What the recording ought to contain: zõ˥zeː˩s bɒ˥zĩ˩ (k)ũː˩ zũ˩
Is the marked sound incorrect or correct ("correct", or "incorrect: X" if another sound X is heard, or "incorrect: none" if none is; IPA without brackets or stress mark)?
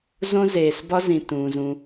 incorrect: t